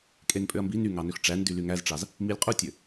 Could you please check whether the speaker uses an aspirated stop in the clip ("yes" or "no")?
no